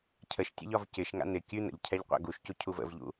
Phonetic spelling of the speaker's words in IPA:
cʰ ə ʃ tʲ ɛ̰ ʎ ɒ v c ɪ ʃ ŋ a̰ n̪ ɪ kʲ ʉ n̪ ə̰ ʎ cʰ ɛ ʎ qʷ a̰ ɡ u ʃ c u cʰ u v ə̰ v ʎ ṵ

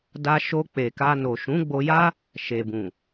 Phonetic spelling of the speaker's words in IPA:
d a˧ ʃ o˧ k͡p e˨ k a˧ n o˨ ʃ ũ˨˦ ɡ͡b o˧ j a˦ | ʃ e˨ b ũ˨

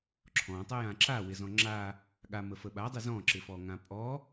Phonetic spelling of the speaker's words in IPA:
ǁʰ ɔ̃ tˤ ə j ã ǁ a w ɪ z ɔ̃ ŋ͡ǁ a | ɠ a m ə f ə ɓ a dˤ ɪ z ɔ̃ ǁ ɪ f ɔ ŋ ã pʼ ɔ

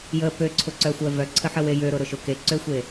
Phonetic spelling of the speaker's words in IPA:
j ə p ø ǀʰ ʊ ǀ œ xʷ œ v œ ǀʰ ə ħ ə w e j ø ɾ ʊ ɾ ʊ ʃ ʊ k e ǀ ø xʷ e

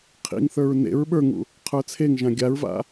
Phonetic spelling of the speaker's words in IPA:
qʰ ḭ ŋ θ ə˞ ɹ n ḛ ɹ ɓ ə˞ ŋ ṵ | qʰ ə˞ t͡sʰ e ŋ ʒ ã ɡʲ a ɹ v a̰

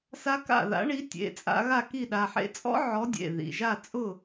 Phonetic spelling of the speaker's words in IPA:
s a˦˥ k a̰˥˨ ð a̰˨˥ ɳ i˨˥ tʲ ḛ˩˧˩ t͡sʼ a̰˧ ɣ a˥˨ k i˥˨ ɗ a˩˧˩ ħ ḛ˦˥ t͡sʼ ɔ̰˦˥ ʕ ɔ˨˥ dʲ ḛ˩˧˩ ð ḭ˩˧˩ ʒ a˥˨ t͡sʼ ʊ˥˨

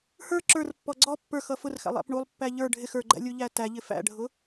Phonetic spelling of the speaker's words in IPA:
h ə˞ ǁ ə˞ r pː ɔ ɡ͡ǀ ɔ pː ə˞ x ʌ f ʊ r x æ̰ lˠ æ̰ p ɳ u lˠ pː æ ʎ ə˞ ɖʱ ɪ x ə˞ ɡ͡ǃ æ̰ lʲ u ʎ æ t æ ʎ ɪ f æ̰ ɖʱ ʊ

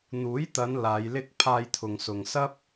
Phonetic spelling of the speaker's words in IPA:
n̪ uː˨˥ j t̪ ɐ˨˧ n l aː˨˧ j l ɪ˥ k̚ pʰ aː˧ j t̪ʰ ʊ˨ ŋ s ʊ˨ ŋ s ɐ˥ p̚

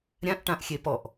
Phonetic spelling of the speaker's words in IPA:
ɾʲ ã ʔ ʈ ã ʔ xʲ e p ɔ ʔ

